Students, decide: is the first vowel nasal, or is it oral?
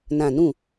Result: nasal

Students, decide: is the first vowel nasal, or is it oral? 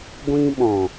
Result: nasal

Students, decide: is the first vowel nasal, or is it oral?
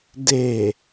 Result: oral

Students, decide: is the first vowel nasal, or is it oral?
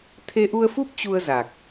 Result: oral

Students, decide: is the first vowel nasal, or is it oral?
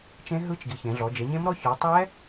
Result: nasal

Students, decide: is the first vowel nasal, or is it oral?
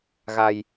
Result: oral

